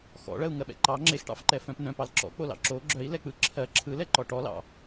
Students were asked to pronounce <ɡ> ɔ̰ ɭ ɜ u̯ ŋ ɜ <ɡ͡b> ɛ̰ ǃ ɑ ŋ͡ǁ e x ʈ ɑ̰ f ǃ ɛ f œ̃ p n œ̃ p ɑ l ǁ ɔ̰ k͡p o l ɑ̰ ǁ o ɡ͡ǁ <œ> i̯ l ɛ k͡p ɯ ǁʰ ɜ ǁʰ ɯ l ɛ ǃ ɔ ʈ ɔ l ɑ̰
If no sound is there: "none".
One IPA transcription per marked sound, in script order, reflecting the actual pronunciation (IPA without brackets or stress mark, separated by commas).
x, ɓ, œ